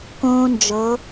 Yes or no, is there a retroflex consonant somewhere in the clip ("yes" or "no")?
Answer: no